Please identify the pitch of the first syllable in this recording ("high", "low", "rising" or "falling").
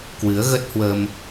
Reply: rising